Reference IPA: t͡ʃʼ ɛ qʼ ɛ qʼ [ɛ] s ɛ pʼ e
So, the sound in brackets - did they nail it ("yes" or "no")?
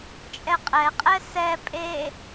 yes